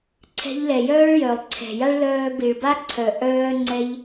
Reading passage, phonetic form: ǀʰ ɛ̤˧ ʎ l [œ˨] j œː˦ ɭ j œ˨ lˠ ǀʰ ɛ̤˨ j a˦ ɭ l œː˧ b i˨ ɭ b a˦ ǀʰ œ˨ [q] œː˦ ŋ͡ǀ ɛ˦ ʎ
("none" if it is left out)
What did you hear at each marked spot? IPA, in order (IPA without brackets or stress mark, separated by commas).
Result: ɛ˨, ʔ